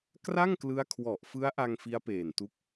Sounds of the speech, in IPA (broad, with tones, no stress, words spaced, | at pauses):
kra˥˩ŋklɯ˦˥a̯kʰwɔ˨˩ʔ fɯ˦˥a̯ʔa˧ŋ fi˦˥a̯peː˨˩ntu˦˥k̚